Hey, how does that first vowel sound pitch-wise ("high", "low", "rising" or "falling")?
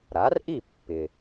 rising